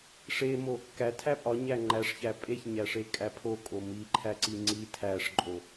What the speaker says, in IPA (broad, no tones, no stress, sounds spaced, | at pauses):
ʂ e m o | k æ tʰ æ pʼ ɒ ɲ æ ŋ͡ǃ æ ʂ ç æ pʼ e ç ɲ æ ʂ e kʼ æ pʰ o kʼ o m i ǃʰ æ ǀ i ŋ͡ǀ i tʰ æ ʂ ǃʼ o